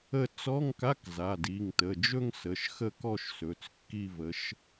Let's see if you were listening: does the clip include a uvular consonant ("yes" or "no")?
no